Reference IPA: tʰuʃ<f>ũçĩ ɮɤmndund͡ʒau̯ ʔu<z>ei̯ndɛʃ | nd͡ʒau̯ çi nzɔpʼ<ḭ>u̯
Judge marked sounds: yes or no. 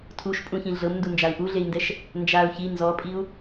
no, no, no

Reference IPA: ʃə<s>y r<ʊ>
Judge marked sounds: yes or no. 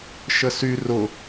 yes, yes

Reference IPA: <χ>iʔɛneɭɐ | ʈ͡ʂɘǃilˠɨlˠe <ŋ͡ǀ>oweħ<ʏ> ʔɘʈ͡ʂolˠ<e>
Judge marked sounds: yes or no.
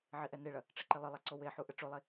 no, no, no, yes

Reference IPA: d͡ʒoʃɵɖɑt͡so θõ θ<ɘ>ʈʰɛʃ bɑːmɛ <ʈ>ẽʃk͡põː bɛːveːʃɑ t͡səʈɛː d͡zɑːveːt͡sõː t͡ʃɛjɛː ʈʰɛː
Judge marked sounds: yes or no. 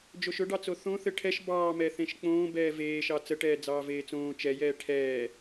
yes, no

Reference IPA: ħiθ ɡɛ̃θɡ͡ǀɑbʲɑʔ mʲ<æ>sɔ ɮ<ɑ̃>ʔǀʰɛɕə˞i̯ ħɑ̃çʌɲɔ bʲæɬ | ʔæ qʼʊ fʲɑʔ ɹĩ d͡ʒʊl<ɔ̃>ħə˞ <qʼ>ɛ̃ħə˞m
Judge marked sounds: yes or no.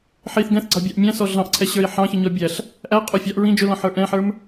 no, yes, yes, no

